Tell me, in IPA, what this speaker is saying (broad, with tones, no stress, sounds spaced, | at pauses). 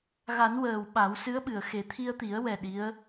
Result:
ɣ a˨˩˦ n w əː˨˩ w ɓ a˨˩˦ w s ɨ˧˥ ə̯ ɓ ɨ˨˩˨ ə̯ x e˨˩˦ t̪ʰ i˧ ə̯ t̪ i˨˩˦ ə̯ w ɛ˨˩ ɗ i˧˥ ə̯